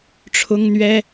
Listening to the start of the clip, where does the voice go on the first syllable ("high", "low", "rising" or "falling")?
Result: high